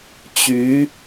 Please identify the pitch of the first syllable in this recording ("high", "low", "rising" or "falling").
rising